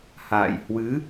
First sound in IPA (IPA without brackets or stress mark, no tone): h